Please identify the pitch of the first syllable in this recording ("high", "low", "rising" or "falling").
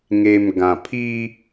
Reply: low